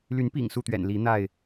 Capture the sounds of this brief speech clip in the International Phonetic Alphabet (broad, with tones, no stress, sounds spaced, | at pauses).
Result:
l y˨˦ n p ḭ˨˩ ŋ s u˥˨ t̪ ɥ ɛ̰˨˩ n l i˨˦ n̪ a˥˨ ɪ̯